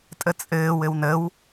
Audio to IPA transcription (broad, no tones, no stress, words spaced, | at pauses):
tʼət͡sʼɘːwɘw nəw